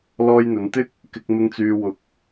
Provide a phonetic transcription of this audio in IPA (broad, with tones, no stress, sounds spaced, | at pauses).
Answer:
l ɔː˧ j n̪ ɵ˨˧ n t̪ ɪ˥ k̚ | k ɪ˧ k̚ m ɪ˧ ŋ t͡s yː˧ w ʊ˧ k̚